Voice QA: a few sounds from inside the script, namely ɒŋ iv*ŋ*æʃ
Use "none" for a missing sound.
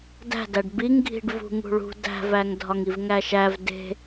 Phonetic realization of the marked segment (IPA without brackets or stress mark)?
ŋ